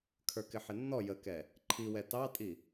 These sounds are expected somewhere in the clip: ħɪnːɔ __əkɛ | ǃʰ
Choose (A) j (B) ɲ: A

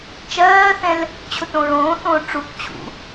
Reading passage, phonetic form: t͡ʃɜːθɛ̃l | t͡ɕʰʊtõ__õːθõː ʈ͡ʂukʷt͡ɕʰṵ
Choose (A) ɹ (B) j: A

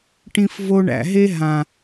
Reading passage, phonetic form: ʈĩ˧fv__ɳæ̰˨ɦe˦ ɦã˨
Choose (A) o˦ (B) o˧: B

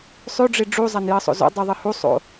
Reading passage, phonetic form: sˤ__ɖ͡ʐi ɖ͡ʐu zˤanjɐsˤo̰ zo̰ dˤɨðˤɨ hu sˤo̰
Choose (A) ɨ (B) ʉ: B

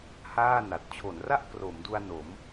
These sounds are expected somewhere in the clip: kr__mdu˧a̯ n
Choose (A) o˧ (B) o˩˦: B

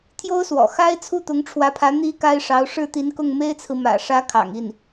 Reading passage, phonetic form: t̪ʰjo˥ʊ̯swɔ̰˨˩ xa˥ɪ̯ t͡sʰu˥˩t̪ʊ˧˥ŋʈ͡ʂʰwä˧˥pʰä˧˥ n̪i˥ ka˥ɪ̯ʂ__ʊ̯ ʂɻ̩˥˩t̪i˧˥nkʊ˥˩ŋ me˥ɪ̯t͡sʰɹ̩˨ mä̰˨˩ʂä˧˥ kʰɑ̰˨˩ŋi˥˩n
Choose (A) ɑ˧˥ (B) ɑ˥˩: A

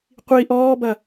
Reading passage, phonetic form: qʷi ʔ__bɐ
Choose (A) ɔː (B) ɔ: A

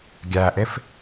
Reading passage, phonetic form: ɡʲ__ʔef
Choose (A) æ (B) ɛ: A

